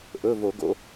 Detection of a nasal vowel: absent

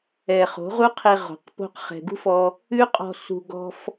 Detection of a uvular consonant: present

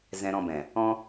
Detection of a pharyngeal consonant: absent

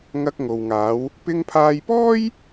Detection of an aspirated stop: present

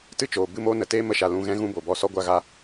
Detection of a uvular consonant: absent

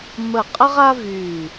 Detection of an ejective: present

